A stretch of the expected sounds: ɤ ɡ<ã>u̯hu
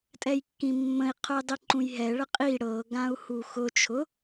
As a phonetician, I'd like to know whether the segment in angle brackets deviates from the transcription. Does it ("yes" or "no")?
no